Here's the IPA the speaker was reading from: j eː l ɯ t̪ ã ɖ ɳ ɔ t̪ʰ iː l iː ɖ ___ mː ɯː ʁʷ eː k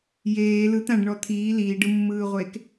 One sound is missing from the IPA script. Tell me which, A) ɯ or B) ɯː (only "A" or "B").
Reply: A